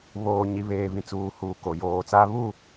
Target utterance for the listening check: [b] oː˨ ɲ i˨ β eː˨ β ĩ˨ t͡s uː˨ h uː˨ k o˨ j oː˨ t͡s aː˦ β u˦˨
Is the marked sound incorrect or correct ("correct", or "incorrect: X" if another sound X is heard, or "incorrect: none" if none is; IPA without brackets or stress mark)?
incorrect: β